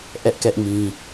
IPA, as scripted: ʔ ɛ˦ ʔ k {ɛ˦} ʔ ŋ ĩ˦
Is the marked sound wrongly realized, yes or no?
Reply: no